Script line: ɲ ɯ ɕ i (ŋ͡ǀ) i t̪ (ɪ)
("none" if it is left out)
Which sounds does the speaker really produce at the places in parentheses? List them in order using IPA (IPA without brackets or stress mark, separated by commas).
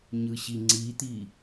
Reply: ŋ͡ǀ, i